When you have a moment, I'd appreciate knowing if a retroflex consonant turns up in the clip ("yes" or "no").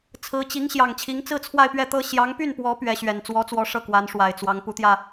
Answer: yes